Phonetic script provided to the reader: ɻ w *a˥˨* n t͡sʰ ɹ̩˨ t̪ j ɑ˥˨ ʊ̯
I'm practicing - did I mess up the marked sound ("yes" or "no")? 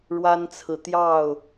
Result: yes